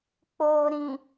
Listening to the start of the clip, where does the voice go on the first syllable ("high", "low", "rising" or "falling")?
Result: low